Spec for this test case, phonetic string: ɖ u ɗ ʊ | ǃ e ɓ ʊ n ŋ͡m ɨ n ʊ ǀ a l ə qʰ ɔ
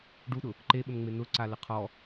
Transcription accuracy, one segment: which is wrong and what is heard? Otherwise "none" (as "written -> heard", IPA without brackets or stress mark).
ɨ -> e